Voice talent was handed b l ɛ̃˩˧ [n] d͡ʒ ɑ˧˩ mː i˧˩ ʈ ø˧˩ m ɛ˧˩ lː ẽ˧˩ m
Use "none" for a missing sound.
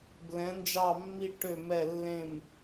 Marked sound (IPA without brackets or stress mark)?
n